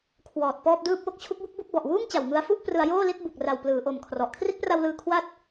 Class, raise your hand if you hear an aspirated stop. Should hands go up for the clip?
yes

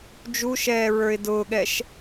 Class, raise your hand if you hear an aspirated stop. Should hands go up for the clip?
no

